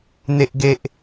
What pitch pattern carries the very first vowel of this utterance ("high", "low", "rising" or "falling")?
high